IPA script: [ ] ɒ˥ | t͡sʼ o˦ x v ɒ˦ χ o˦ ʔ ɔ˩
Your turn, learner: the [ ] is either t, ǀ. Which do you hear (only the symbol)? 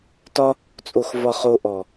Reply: t